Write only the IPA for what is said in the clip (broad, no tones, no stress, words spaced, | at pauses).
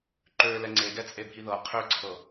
ǃølɛ ŋ͡ǀeɡɛt͡sʼebʱi ðɤ qʰøǀʰɤ